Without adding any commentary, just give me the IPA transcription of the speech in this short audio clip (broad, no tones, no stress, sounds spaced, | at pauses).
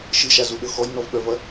ʃ ɨ ʃ a z u ɗ ɤ x ɔ j n ɔ v ɓ œ v ɐ